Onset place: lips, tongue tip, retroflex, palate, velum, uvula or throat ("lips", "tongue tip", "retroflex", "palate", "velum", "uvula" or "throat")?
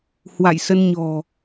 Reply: throat